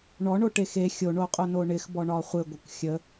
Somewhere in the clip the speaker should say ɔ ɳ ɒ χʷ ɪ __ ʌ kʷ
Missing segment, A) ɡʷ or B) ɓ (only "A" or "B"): A